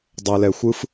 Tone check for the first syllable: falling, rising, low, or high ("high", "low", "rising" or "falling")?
low